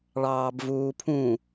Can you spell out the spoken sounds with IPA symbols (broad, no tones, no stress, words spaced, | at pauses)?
ɭɑːbvuːpʰũ